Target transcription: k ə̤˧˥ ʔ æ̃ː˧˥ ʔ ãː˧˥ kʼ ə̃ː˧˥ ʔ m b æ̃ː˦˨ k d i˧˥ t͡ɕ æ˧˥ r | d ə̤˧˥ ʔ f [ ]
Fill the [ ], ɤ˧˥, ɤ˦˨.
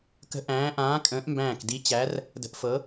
ɤ˧˥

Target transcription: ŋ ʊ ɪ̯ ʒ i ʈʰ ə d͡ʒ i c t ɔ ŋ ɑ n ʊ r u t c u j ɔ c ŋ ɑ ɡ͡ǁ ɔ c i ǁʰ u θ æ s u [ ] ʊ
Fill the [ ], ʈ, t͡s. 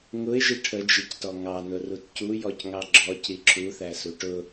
ʈ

